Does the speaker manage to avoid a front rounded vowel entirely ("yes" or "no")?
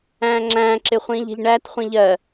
yes